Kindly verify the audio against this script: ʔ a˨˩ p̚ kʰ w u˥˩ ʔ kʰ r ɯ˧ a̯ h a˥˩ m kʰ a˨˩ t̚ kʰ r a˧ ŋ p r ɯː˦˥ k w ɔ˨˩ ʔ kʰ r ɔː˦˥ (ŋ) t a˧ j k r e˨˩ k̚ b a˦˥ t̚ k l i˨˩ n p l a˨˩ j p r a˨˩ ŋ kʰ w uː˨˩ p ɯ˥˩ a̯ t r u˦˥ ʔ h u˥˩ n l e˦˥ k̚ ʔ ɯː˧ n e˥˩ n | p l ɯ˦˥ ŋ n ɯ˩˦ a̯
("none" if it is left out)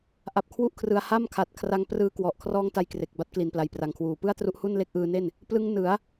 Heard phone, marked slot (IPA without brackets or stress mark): ŋ